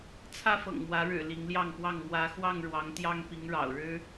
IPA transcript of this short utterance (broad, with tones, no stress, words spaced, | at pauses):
t͡sʰä˦fɤ̰˨˩ŋmwä˨˦ɻɻ̩˨˩ li˨˦ŋljɑ˥˨ŋpwɑ˥˨ŋ mwä˨˦ xwɑ˥˨ŋɻwɑ˨˦ŋt̪jɑ˦ŋ pi˨˦ŋɻɑ̰˨˩ʊ̯ɻɻ̩˦